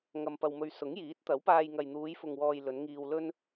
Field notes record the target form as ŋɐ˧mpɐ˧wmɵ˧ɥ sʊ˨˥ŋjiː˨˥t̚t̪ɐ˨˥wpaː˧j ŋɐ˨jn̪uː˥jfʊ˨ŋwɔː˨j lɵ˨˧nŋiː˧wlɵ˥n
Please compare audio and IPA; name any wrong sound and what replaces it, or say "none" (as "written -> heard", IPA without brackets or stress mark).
uː˥ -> uː˨˧